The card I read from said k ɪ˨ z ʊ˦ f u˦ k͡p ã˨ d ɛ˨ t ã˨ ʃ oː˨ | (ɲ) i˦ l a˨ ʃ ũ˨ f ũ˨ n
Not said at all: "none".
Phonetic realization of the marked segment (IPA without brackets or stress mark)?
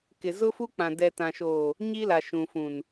ɲ